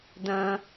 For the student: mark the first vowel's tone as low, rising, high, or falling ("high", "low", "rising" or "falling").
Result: high